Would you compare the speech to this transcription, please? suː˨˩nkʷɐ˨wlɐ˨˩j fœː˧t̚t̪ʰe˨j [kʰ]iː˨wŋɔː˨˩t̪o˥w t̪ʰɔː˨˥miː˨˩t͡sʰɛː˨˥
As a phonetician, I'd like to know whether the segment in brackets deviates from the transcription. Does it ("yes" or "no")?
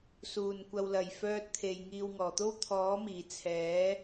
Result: yes